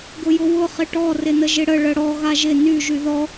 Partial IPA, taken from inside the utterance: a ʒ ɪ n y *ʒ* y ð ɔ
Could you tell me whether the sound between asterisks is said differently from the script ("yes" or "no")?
no